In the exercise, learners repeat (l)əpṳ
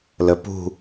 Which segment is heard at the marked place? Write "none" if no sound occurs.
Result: l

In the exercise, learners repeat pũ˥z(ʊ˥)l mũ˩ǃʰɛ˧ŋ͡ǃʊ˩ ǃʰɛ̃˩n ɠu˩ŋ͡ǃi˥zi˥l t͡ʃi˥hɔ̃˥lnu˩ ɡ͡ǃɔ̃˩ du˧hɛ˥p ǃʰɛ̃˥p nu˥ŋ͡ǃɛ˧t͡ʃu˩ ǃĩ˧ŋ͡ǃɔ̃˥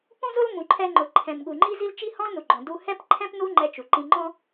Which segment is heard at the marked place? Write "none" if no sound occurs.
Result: ʊ˥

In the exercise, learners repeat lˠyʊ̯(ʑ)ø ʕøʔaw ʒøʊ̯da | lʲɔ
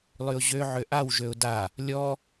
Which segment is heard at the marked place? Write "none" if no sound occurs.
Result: ʑ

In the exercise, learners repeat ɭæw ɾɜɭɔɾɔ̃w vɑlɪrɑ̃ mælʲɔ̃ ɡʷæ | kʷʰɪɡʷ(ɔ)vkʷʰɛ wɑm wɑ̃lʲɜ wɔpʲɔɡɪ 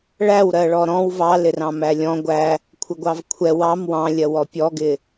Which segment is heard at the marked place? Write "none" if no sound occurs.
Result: ɑ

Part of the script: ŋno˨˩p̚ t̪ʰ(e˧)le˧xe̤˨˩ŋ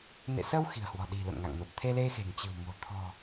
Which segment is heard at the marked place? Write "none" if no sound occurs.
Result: e˧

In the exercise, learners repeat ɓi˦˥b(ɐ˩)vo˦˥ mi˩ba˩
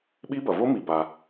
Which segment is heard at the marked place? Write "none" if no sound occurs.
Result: ɐ˩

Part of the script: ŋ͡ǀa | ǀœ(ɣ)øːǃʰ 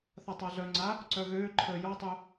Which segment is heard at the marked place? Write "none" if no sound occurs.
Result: ɣ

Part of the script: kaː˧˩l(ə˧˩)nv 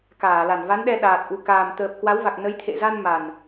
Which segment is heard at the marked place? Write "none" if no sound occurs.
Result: a˧˩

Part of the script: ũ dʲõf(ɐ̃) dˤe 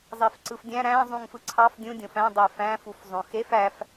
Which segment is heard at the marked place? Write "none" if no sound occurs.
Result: æ̃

